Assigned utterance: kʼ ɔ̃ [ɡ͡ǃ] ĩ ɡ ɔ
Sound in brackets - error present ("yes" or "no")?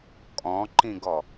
yes